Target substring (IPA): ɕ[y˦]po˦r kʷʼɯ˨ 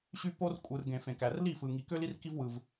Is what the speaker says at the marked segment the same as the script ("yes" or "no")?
yes